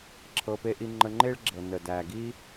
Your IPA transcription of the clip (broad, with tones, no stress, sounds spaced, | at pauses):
ǁʰ ɤ˧ p e˥ ʔ i˥ ŋ͡ǃ ə˧ ŋ͡ǃ e˥ ɭ ɡ͡ǁ ɤ˩ n ə˩ d æ˩ ɡ i˥